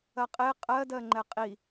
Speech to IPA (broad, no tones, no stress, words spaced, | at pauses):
ɐqʼe qʼɜ dɜŋ͡ǃɛqʼi